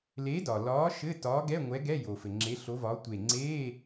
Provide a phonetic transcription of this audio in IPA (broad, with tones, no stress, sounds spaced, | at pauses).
l e˨˥ d ɒ˩ l ɒː˨˥ ʃ ɘː˧˥˧ t ɒː˨˥ ɡ ɛ˧˥˧ ŋʷ ɛ˨˥ ɡ ɛ˧˥˧ j o˩ f ɘ˩ ŋ͡ǁ e˨˥ ɬ o˨˥ v ɒː˨˥ tʷ e˧˩ ŋ͡ǀ e˧˥˧